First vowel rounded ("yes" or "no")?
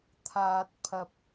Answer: no